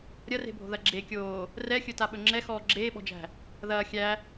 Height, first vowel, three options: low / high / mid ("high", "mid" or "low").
low